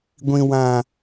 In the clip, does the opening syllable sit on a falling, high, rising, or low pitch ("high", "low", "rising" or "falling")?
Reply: high